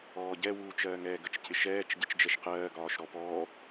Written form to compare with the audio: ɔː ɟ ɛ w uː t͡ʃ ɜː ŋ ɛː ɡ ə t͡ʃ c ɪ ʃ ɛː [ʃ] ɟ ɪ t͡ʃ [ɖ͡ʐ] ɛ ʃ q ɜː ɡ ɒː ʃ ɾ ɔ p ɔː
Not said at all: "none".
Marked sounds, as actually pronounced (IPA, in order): t͡ʃ, d͡ʒ

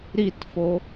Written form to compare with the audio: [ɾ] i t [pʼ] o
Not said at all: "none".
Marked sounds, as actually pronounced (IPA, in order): ɾ, f

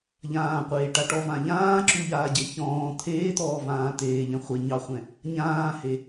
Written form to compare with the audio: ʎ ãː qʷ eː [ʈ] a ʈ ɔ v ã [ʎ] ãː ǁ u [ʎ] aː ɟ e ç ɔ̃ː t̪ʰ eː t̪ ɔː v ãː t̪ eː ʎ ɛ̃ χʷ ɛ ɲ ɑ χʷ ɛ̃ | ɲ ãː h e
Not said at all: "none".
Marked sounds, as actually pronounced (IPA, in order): ʈ, ʎ, ʎ

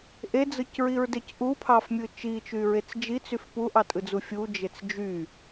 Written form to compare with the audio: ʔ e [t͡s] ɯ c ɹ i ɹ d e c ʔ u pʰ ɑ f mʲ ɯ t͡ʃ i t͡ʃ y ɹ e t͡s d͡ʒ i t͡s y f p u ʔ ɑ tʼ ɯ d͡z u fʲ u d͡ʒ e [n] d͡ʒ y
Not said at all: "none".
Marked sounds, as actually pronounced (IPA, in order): d͡z, t͡s

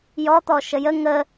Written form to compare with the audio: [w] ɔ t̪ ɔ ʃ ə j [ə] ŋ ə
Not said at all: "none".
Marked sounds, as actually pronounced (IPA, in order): j, ə

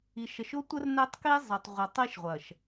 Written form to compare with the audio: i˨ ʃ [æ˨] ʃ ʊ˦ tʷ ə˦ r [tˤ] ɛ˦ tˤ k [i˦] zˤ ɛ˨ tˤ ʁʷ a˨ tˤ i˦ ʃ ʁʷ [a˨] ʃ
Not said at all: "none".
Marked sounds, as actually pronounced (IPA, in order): ə˨, n, i˦, ɐ˨

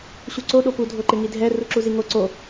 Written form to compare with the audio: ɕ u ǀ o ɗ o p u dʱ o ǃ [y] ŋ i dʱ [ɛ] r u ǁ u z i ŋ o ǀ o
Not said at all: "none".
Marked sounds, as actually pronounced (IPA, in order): ɪ, ɛ

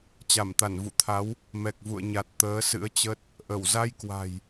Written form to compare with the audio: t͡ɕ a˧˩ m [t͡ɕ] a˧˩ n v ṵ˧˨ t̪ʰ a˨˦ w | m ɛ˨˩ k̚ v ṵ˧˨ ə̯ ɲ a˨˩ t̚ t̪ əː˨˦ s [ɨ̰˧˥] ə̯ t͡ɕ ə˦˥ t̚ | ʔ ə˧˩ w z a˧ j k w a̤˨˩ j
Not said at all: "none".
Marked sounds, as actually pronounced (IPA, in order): t̪, ɨ̰˧˥

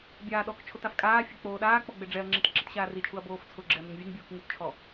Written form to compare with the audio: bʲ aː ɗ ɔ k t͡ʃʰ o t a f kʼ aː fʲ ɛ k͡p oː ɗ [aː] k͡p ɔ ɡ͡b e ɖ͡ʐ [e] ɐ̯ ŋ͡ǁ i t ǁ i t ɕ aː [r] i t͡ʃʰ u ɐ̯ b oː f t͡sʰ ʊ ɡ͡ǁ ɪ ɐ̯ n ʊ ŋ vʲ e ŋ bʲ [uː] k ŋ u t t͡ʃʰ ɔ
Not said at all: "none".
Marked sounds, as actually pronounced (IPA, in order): aː, ɛ, r, uː

